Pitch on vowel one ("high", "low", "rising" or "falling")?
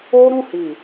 high